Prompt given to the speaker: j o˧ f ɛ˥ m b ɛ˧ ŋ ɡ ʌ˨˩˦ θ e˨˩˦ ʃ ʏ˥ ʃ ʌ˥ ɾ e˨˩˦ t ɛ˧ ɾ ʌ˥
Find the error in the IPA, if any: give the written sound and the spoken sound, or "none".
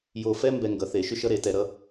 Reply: none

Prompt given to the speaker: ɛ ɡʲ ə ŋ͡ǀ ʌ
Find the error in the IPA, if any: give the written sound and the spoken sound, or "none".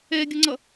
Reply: none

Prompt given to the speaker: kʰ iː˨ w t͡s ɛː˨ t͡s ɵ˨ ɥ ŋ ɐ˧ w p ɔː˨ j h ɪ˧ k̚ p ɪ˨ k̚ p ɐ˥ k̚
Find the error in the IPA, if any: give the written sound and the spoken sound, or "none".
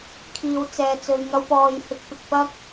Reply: none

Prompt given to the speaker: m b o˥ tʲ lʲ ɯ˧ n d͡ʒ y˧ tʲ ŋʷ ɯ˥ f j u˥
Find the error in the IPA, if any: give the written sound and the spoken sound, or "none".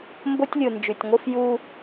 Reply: none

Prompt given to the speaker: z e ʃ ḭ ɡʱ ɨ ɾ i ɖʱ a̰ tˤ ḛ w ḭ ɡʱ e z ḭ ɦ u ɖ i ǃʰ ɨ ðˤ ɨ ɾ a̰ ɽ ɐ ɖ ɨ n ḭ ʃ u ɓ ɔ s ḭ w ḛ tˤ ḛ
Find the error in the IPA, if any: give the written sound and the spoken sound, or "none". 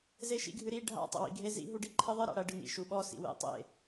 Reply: none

